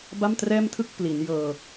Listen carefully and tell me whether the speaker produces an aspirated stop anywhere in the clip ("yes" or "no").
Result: yes